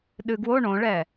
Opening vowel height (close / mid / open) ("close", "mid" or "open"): close